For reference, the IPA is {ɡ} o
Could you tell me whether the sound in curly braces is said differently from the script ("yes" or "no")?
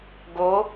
no